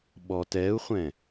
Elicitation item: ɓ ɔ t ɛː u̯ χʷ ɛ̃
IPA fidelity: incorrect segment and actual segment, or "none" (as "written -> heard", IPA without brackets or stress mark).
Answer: none